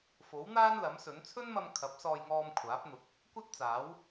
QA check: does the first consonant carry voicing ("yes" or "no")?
no